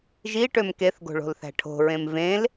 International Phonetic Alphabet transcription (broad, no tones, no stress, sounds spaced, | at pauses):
ʒ i ʈ ø m k e θ ɡ o̤ ɭ o̤ l θ æ̤ ʈʰ o̤ ɹ ẽ m v ẽ l